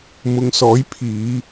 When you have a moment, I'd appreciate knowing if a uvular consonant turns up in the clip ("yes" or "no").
no